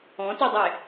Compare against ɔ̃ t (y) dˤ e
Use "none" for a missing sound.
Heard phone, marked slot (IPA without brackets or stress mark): y